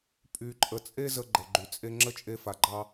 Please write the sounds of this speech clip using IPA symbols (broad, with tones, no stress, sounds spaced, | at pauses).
pʼ y˧ ǃʼ ə˧ t͡sʼ e˥ z ə˧ ɡ͡ǃ ə˩ ɡ͡ǃ y˩ t͡sʼ e˧ ŋ͡ǁ ə˥ t͡ʃʼ e˧ f a˩ ɡ͡ǃ ɑ˧